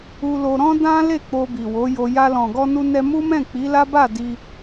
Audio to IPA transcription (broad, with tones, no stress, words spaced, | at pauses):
u˧lo˧ ɾɔ̃˦dã˦le˦˨ k͡po˧bi˨wo˨˦jo˧ ja˧ lɔ̃˨ɡɔ˧nu˧ nɛ˧mu˦mɛ̃˦˨ k͡pi˨˦la˦ba˦˨ di˧